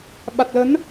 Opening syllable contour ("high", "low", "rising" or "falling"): low